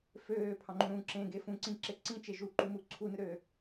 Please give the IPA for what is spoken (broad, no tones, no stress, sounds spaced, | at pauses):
f øː pʰ ɑ̃ ŋ͡ǃ ũ ɾ ũ ǁ ẽ ɡ e f ũ ǀ ĩ ǁ e ǀ ĩ t͡ʃ e ʒ u ǃ u m u ǀʰ u n ɯ ɾ øː